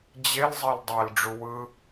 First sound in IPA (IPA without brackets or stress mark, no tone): d͡ʑ